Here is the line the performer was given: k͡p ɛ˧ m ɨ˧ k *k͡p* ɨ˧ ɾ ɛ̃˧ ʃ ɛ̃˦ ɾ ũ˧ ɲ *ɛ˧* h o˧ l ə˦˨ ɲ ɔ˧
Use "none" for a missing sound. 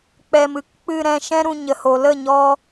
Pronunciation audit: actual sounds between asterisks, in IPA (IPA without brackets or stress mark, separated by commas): k͡p, ə˧